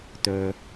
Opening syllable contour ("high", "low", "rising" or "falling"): low